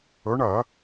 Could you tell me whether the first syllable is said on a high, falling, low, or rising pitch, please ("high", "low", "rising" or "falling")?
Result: rising